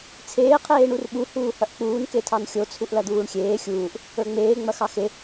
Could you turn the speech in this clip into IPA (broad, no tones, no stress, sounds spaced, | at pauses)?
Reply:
t͡sʰ eː qʰ eː ɳ u r ɓ u h uː h ɐ ʔ k͡p uː n k e tʰ ɑ n xʲ o t͡sʰ u ʔ l ɐ d̪ uː ɳ xʲ eː xʲ uː ʔ | ə˞ ŋ͡m eː ŋ͡m ɐ x ɑ x e